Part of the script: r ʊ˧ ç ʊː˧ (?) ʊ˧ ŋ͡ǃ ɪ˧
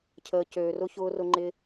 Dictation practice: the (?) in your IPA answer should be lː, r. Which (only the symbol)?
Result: r